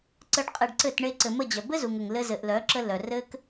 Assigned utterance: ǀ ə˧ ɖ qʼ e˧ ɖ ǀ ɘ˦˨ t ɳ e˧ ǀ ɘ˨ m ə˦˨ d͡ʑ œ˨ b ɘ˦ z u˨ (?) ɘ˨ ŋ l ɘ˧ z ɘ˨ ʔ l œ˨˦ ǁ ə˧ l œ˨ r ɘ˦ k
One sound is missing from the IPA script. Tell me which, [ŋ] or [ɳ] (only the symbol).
ŋ